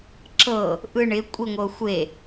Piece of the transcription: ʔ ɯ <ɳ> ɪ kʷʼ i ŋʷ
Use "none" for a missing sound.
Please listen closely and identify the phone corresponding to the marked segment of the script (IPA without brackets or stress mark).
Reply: ɳ